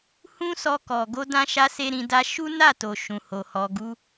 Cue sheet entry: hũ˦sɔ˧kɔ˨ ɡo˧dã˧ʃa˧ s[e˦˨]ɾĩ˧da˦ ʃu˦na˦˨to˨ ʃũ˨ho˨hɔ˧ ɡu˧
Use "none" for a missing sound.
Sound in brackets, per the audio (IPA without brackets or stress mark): e˦